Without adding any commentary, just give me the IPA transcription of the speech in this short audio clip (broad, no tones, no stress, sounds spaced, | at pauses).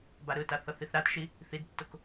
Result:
b a ɾ ɯ t a θ ʌ θ i θ ɾ a t ʃ i | θ i d tː o k